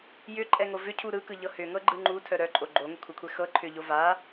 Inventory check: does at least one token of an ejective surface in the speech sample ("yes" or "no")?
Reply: yes